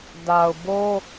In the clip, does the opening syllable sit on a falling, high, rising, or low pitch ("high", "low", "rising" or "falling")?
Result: low